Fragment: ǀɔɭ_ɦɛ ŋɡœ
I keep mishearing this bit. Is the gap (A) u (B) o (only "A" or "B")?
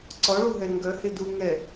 A